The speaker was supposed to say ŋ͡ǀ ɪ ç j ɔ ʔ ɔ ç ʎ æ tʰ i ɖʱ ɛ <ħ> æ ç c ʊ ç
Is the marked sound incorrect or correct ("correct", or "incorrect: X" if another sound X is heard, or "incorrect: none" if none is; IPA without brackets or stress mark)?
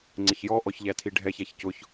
incorrect: ç